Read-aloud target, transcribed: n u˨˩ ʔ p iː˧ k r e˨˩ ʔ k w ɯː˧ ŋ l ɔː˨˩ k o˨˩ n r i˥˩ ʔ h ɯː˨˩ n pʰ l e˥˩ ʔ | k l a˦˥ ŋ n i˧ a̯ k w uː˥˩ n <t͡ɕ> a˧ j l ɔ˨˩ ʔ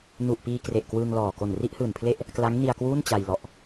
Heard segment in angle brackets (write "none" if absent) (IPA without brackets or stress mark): t͡ɕ